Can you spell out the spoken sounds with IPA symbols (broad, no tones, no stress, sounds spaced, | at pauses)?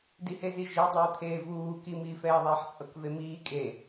d i h e z i ʒ e dˤ ɯː t̪ʰ eː v uː k i m iː f ɛː ðˤ eː ħ t͡sʼ ɤ k v e m iː kʼ e